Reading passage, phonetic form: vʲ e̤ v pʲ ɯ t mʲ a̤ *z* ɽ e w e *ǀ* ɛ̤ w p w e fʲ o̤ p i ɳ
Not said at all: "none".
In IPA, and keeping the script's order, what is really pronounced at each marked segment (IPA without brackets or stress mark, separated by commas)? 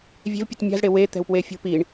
z, t̪